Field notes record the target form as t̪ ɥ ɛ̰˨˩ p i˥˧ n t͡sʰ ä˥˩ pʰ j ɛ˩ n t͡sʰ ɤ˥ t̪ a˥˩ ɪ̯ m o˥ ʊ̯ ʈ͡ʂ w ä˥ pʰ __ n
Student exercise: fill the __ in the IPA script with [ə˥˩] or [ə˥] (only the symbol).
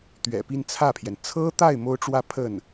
ə˥˩